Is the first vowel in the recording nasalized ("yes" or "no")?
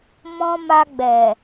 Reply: yes